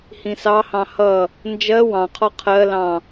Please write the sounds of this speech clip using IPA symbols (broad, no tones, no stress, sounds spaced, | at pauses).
h ĩ s ɑ h ɑ̃ h ʌ | n d͡ʒ ɜ w ɑ̃ qʰ ɔ qʰ ɜ l ɑ̃